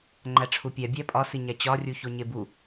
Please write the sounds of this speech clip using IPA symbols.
ŋ͡ǃ æ ʈ͡ʂʰ u pʲ æ bʲ æ pʼ ɒ s i ɲ æ t͡ɕ ɒ rʲ u ç o ɲ e b u

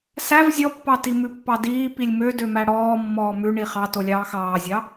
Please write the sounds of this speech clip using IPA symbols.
s æ v zʲ ɔ pː ɑ t i m ʉ pː ɑ d iː p i lʲ m ø d ø m æ ɽ ɔː mː ɔː m ʉ ɳ i χ ɑ t o lʲ ɑː x ɑː zʲ ɑ

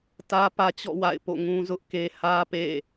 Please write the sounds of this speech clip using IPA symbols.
t ä˦ p ä˦ t͡ɕ ɔ̰˦˨ w a̰˦˨ ɪ̯ p o̰˦˨ ŋ ũ˦ z ʊ˦ ʔ k e˦ h ä˦ p ḛ˦˨

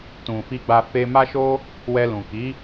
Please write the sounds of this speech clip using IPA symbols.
t ũ˨ f i˧ ɡ͡b a˧ f e˧ m a˦ ʃ o˦ | w ɛ˧ l ũ˨ k i˨˦

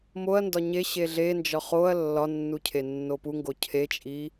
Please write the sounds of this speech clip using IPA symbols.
m o ɐ̯ n d ɒ ɲ e ɕ e ɮ e n d͡ʒ ɒ χ o ɐ̯ lː ɒ nː u cʰ e nː o p u ŋ ɡ o cʰ e t͡ʃʼ i

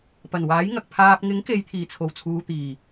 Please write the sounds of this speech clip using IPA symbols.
p ɐ˨˩ n w aː˨˥ j ŋ ɐ˨ k̚ pʰ aː˨ p̚ ŋ ɪ˨˥ ŋ k e˨ j t̪ʰ iː˨˩ t͡sʰ o˨˩ w t͡sʰ uː˨ t̪ iː˨˩

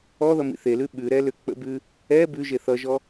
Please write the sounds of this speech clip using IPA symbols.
ɔ ð ʌ m ḭ θ e l ʉ ɓ ʉ ɾ ɛ l ʏ k͡p ə̰ b ʉ | ɛ b ʉ ʒ e θ ʌ ʒ ɔ

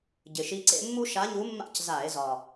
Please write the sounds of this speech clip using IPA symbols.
ɟ ɪ˨˩ ʃ i˧˥ ǀ ḛ˥ mː u˥ ʃ a˧˥ ɲ u˧˥ mː a̰˥˩ c z a˧˩˧ e̯ z ɒ˨˩

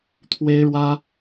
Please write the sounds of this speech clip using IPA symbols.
t̪ʰ w e˥ ɪ̯ ɻ w ä˥

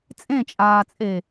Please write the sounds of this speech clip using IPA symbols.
t͡sʼ ẽ t͡ʃʼ aː t͡sʼ e

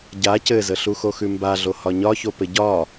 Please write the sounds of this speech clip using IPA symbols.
ɟ a c ɘ z ə ɬ u x o x ʉ m b a ɮ o h ɒ ɲ ɒ ç o p ɘ ɟ ɒ

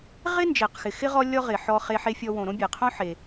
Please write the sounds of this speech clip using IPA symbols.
ʁ ɪ˥ n d͡ʒ e˩ q x ɪ˩ x ɪ˥ ʁ ɔ˥ lʲ ɔ˥ ʁ ɪ˩ ħ ɔ˧ χ e˧ ħ e˧ fʲ ɔ˧ w õ˩ ɾ õ˥ bʲ e˩ qʰ õ˥ ħ e˩

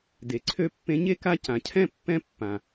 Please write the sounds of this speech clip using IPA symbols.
d e˩ ǀʰ ø˦ pː ẽ˦ ɲ e˥ k a˦ c ã˩ cʰ ɛ̃˥ pː ɛ̃˥ pː ã˩

